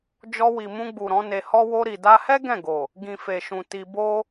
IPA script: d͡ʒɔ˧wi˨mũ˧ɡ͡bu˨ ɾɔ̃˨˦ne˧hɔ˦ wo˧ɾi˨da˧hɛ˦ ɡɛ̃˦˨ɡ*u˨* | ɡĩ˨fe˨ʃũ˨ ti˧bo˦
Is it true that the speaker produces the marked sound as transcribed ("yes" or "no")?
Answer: no